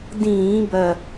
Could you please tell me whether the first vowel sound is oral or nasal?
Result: nasal